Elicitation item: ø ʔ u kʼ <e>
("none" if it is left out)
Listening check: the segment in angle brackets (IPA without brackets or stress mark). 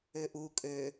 ø